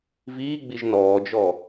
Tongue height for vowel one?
high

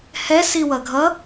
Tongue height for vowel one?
mid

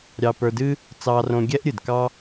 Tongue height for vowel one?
low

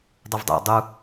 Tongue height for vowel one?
high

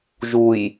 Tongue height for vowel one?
high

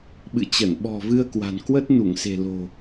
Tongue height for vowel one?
high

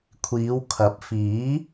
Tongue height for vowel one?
high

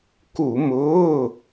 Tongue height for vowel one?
high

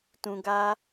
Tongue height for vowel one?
high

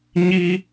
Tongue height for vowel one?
high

